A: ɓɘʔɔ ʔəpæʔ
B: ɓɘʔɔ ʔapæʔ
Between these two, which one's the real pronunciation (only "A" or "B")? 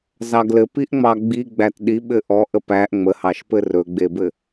A